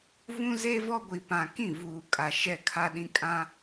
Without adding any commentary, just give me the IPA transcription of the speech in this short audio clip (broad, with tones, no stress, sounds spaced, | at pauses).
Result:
v ũ˦ z e˦ v ɔ˦ ɡʷ i˨ p ã˨ k ĩ˦˨ v uː˨ kʼ a˨ ʃ ɛ˦˨ kʰ a˦ ɗ ĩ˦ kʼ ã˦